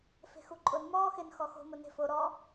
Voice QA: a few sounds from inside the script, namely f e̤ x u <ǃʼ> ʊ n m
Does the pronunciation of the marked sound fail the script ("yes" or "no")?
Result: no